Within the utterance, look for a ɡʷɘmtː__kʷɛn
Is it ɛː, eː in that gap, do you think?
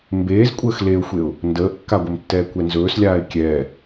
ɛː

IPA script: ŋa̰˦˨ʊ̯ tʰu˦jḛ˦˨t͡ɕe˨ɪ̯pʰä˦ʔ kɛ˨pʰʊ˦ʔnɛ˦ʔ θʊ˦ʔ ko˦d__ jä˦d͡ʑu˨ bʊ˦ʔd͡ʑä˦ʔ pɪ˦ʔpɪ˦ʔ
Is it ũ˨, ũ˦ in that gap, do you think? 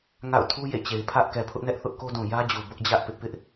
ũ˨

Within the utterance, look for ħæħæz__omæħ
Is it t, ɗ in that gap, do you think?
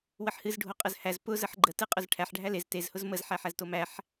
t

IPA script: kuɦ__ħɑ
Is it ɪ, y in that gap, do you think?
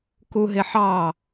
ɪ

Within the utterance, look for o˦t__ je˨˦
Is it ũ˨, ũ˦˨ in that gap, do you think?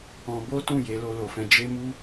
ũ˦˨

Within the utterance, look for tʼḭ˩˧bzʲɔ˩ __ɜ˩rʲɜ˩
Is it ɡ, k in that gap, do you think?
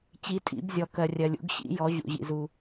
k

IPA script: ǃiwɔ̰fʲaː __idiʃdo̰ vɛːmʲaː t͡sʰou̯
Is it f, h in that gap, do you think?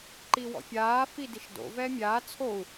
f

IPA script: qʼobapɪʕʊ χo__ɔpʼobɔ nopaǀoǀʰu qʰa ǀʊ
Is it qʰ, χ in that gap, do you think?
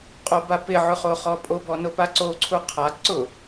χ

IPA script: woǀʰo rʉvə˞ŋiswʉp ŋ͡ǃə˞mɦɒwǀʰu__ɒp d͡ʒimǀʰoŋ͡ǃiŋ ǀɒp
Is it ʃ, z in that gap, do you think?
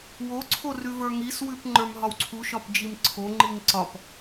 ʃ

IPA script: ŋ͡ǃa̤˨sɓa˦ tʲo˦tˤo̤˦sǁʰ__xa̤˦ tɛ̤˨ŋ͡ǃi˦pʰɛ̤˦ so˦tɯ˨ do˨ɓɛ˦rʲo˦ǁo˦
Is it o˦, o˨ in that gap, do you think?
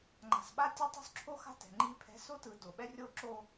o˦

